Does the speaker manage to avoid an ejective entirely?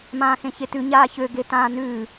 yes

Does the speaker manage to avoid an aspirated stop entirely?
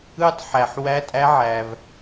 yes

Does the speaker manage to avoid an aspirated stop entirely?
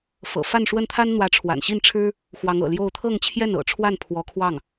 no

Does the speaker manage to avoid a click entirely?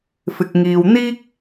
yes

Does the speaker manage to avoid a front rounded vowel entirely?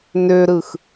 no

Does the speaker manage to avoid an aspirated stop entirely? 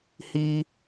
yes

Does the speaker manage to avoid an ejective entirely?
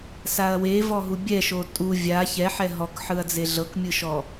no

